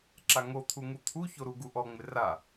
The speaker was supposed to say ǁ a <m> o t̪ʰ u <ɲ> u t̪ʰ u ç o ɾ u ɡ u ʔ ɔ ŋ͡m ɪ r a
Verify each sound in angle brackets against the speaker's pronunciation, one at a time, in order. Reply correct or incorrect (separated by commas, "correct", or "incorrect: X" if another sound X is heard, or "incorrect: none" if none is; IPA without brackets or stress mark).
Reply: incorrect: ŋ, incorrect: ŋ